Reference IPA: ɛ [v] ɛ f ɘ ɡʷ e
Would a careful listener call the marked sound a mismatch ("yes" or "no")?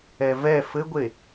no